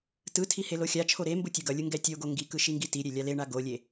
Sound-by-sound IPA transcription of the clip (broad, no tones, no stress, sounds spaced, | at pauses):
t ɯ tʰ i h e l o xʲ a t͡ʃʰ o ɾ e m b u tʲ e ɡ ʌ lʲ ɯ ŋ ɡ ɛ tʲ o ɡ o ŋ ɡ i k ɯ ʃ i ŋ ɡ i t i ɾʲ e lʲ a l e ɳ a ɡ o lʲ e